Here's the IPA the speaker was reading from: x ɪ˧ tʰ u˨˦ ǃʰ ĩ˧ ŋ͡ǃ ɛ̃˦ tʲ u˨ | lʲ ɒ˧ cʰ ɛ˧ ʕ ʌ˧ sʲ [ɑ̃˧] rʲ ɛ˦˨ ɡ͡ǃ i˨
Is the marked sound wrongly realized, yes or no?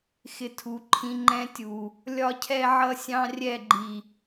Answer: yes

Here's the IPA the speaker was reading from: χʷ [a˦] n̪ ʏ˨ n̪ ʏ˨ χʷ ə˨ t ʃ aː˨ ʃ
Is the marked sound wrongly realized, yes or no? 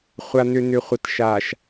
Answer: yes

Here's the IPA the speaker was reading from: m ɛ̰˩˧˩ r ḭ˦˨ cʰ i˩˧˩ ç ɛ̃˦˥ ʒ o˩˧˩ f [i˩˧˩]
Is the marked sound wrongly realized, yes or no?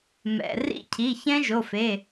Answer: yes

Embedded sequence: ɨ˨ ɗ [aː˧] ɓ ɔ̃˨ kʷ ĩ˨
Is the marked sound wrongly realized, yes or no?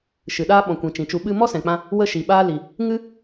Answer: yes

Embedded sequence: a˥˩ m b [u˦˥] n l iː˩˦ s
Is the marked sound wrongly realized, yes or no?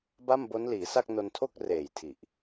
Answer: yes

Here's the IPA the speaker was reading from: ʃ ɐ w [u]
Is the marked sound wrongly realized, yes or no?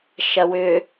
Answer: yes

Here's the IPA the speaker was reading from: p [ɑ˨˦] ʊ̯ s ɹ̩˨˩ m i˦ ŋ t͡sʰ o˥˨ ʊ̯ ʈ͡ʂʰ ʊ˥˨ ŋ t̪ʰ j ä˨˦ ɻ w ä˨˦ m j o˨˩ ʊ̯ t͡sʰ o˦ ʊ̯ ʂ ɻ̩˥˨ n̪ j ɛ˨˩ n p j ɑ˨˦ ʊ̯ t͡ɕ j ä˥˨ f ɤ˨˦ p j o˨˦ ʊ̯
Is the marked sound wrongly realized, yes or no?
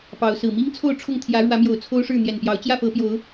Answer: no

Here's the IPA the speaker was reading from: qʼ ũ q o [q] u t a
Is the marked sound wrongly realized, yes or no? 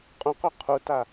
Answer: yes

